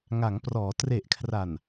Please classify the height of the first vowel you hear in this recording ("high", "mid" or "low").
low